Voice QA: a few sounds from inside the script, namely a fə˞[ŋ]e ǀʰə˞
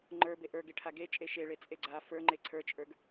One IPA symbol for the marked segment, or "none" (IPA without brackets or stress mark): ŋ͡ǃ